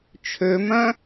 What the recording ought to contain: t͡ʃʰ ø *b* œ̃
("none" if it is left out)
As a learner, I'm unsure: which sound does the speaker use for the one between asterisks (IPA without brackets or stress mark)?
m